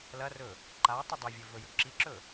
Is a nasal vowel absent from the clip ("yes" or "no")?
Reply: yes